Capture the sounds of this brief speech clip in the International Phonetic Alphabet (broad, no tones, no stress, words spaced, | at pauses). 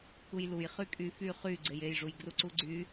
kujluj χykʼy fy χy ɡ͡ǀejejʐuj ɡruǀuɡ͡ǀy